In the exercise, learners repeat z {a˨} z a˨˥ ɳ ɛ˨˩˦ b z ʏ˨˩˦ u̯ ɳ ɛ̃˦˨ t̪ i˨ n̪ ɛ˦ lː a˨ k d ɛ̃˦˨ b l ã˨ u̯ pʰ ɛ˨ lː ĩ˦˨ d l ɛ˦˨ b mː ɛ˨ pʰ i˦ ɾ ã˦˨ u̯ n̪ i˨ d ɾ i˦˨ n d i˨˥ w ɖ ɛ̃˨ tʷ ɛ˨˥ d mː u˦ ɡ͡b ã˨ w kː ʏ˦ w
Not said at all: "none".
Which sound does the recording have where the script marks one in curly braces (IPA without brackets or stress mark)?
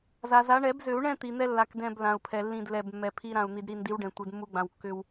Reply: a˨